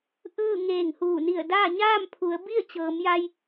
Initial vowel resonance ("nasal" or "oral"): oral